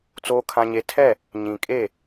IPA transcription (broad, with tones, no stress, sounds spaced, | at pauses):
t͡s oː˦ kʰ ã˦ ɲ e˦ tʰ ɛ˦˨ | ɲ ĩ˨ kʼ e˦˨